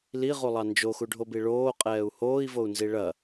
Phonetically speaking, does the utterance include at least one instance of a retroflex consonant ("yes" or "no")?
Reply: yes